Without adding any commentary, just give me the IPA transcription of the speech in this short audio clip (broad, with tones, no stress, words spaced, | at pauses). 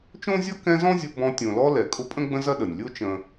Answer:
t͡ʃõ˥zʲʌ˥kɛ̃˦zɔ̃˥ zʲʊ˦bɔ̃˦ tʲõ˨lɔ˦ lɛ˨ kʼʊ˦pʼə̃˥ ɡ͡bə̃˥zɐ˥ɗə˩nʲ lʲo˦t͡ʃə̃˨